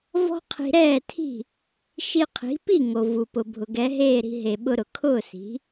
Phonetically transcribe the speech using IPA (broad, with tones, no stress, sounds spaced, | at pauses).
v ɔ̤˥ qʰ i̤˧ ɾ ɛː˥˩ tʰ i̤˥˩ | ʃ i˧ qʰ i̤˩˥ p i˥˩ ŋ o˩ v u˩ p ʊ˩ bʱ ʊ˩ ɡ ɛ˩˥ ɦ eː˥˩ ɾ i̤˧ ɦ e˩ ɓ ʊ˧ ɾ ʊ˩ kʰ ʊː˥˩ s i̤˩˥